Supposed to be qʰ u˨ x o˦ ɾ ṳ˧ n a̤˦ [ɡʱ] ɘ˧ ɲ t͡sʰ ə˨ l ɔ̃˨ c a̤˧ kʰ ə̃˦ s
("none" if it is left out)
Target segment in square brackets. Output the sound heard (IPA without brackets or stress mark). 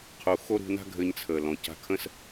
ɡʱ